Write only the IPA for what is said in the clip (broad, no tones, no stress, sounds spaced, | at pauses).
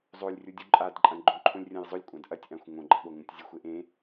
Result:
zˤ o lʲ rʲ u dʲ u ǃʼ a d ǃʼ ɐ̃ ɡ͡ǃ õ ǃʰ õ lʲ rʲ ɐ̃ j zˤ ɵ lʲ kʷʼ ã d ʔ ɐ tʲ ʔ ã xʷ ŋ õ ɡ͡ǃ ɐ ɠ o ŋ ũ tʲ zʲ ɨ xʷ e ʔ ẽ